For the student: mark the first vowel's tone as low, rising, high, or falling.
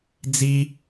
high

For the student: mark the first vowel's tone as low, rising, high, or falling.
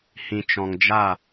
low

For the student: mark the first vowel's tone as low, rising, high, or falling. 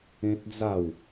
high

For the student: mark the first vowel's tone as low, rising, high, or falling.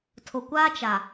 low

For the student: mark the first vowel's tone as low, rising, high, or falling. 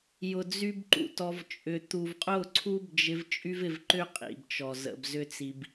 low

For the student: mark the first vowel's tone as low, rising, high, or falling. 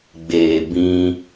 low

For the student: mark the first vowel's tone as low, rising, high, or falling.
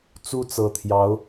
high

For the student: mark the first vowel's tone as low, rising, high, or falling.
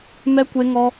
high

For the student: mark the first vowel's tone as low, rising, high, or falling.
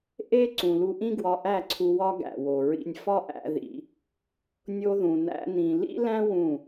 high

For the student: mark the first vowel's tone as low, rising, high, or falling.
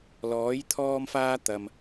rising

